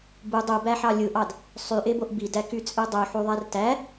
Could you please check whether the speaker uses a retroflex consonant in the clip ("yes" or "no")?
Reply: no